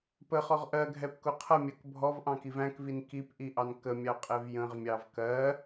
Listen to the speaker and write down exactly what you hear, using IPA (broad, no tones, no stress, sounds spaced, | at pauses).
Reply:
p ə χ ɔ ʁ ʔ ɜ ɡʱ ɛ p k ʊ qʰ ʌ mʲ ɜ k bʱ ɔ v ʔ ɑ̃ k i v æ̃ k v i n k i p ʔ i ʔ ɑ n k ə mʲ ɑ qʼ ɛ v j ə̃ ʁ mʲ ɑ v k ɜ